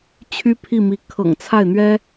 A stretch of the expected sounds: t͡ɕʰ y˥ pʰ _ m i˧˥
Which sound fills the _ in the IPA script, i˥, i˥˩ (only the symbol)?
i˥˩